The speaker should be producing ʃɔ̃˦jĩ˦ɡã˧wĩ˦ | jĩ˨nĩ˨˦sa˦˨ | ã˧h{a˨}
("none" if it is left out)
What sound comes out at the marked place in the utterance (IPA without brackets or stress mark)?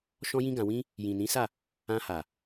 a˨